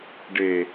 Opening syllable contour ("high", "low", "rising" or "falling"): low